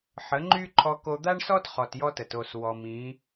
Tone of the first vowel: rising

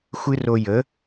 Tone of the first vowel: high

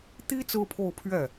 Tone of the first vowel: high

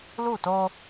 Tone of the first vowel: falling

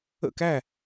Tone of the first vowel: falling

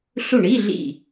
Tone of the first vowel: falling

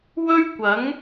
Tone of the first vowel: high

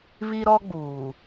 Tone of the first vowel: high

